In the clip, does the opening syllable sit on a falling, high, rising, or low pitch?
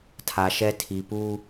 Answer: low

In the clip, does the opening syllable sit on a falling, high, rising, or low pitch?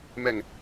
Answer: low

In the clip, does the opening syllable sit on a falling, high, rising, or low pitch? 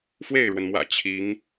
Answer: falling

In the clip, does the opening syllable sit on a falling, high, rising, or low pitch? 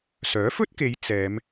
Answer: rising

